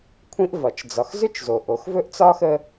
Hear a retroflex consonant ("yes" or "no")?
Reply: no